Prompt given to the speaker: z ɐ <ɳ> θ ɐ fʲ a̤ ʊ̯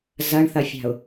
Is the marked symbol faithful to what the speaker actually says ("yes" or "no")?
yes